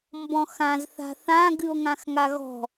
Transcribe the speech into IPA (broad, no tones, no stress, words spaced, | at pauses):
mbɔ̃xãz θa̤θã ɡɨo̯ŋãxŋaɣɔ̤